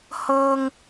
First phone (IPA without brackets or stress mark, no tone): h